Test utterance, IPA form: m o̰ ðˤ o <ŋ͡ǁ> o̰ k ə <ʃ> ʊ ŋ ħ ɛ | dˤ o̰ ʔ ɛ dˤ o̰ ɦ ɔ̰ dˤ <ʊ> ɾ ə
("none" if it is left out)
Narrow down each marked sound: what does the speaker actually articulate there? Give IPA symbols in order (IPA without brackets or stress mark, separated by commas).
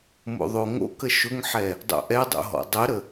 ŋ, ʃ, ə